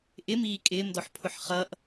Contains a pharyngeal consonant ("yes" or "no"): yes